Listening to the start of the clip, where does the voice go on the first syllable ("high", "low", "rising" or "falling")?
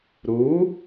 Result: rising